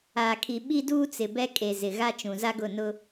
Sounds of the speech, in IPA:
a˨ kʰ i˨ ɓ i˦ d uː˦ t͡s ɪ˨ b ɛ˦ kʼ e˨ z ɪ˨ ɣ a˦ t͡ʃ ũ˨ z a˦ ɡ ʊ˦˨ n ʊ˦

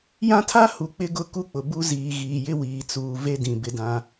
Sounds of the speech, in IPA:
j ã˦ tʰ a˦ h u˨ k͡p ɪ˦ ɡ ʊ˦˨ k u˦ k͡p ʊ˨ b u˦ z iː˨ ɣ iː˨ j ɪ˦ w iː˨ t͡s uː˨ v e˦ d ĩ˨ b ɪ˦ d ã˦

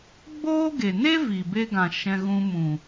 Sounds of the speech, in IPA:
ɡ͡b oː˦ ɡ e˨ n e˦ v i˨ b e˧ ɡ ã˨ ʃ ɛ̃˧ ɣ ũ˧ m ũ˨

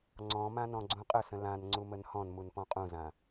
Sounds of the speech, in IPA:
ŋ͡ǀ ɔ̃ m ã n ɔ̃ ɡ͡ǀ ũ qʼ ə s ə̃ l ã n ŋ͡ǀ u m ə n h ɔ̃ n m u n p ɔ̃ qʼ ũ z ã

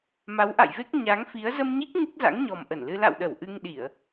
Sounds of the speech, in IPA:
m a˨˦ w ʔ a̰˧˨ j v e˦˥ k̚ ɲ a˨˦ ŋ f i˨˦ ə̯ z ə˧ m ɲ i˦˥ k̚ ŋ ɨ˦˥ k̚ z a̰˧˥ ŋ ɲ ɔ˨˩ m ʔ ə˧˩ n l ɨ˧ l a̰˧˨ w ɗ ə˧˩ w ʔ ɨ˧ ŋ ɗ i˧˩˨ ə̯

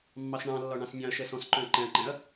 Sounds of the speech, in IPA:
mː ɑ s ɳ ɑ̃ lː ɒ ɳ ɑ̃ s nʲ ɑ̃ ɐ̯ ʃ ɛ s ɔ̃ s ǃ œ̃ ɐ̯ ǃ ɛ̃ ɐ̯ ǃ ɛ̃ ɐ̯

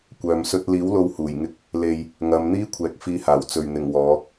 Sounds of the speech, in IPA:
kʷ œː˨ m s ɵ˥ t̚ l iː˨˥ w l o˧ w h uː˨˩ j ŋ ɪ˧ k̚ | l e˨ j | ŋ ɐ˨˧ m n̪ iː˥ kʷʰ ɛː˨ k̚ f iː˧ h aː˨˩ w t͡s ɵ˨ ɥ n̪ ɪ˨˩ ŋ w ɔː˨˧

